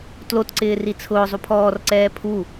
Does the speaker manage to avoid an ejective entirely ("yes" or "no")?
yes